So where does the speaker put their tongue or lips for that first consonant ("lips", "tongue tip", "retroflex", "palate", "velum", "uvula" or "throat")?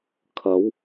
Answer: velum